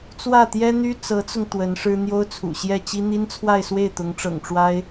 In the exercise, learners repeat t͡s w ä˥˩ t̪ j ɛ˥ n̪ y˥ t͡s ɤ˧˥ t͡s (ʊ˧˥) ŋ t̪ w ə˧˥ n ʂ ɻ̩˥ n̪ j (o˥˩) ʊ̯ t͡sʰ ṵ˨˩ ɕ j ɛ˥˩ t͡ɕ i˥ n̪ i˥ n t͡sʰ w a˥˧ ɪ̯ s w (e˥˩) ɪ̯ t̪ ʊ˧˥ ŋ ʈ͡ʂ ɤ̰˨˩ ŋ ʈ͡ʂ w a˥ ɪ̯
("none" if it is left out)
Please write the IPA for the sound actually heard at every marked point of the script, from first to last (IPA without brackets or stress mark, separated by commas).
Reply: ʊ˧, o˥, e˥˩